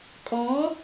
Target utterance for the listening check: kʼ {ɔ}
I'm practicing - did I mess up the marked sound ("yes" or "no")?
no